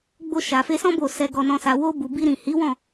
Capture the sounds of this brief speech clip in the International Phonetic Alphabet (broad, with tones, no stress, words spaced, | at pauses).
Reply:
ɡ͡bo˧ʃa˨fe˧sɔ̃˦ bo˦˨ sɛ˧ɡɔ˧nɔ̃˧ sa˨wo˧bu˨ bi˧ɾĩ˨hi˨˦wɔ̃˦˨